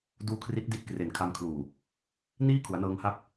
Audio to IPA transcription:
d uː˦˥ kʰ r i˦˥ t̚ d i˥˩ t̚ k r e˨˩ n kʰ a˧ m kʰ l uː˨˩ | n iː˥˩ kʰ u˩˦ a̯ n ɤː˧ ŋ h a˦˥ p̚

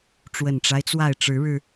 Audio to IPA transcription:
ʈ͡ʂ w ə˨˩ n ʈ͡ʂ a˦ ɪ̯ t͡s w a˥˨ ɪ̯ ʈ͡ʂ ɻ̩˨˦ ɻ ɻ̩˧

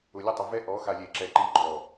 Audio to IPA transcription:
ʊ˨ lʲ ʊ˦˨ tˤ ʊ˨ v ɛ˦ ʔ ɔ˨˦ x a˨ lʲ e˨ ǁ ɛ˨ ǃ i˨ ɡ͡ǃ ɔ˨

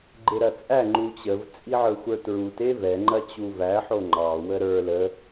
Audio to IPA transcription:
ɡ͡ǃ e ɾ ɐ t͡sʼ æ ŋ͡ǃ u t͡ɕ ə v t͡sʼ i ʕ ə˞ xʷ ə˞ t ɹ u t e v ɛ ŋ͡ǃ ɐ t͡ɕ u v æ ħ o ŋ͡ǃ ɑ w ə ɾ ə˞ l ə

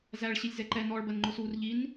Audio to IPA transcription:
z æ ɭ ɕ i lʲ z ɛ ǃ ɛ n ɔ ɭ b ɜ n ŋ͡ǃ ʊ s u r ʎ i n

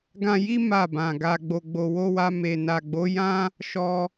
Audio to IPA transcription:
ɡ ã˧ j i˦ m a˦˨ b ã˨ ɡ a˧ ɡ͡b o˨ ɡ͡b o˨ w o˧ w a˧ m e˨ n a˨ ɡ͡b o˨˦ j ã˦ | ʃ ɔ˧

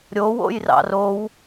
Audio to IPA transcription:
ɾʲ o w o̰ j r ɑ̰ r o w

